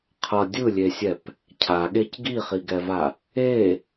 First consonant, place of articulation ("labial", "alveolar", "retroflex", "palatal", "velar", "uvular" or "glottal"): uvular